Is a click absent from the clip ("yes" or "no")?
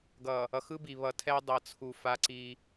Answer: no